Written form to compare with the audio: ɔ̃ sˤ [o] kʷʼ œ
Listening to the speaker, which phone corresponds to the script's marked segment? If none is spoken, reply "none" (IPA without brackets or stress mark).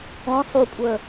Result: u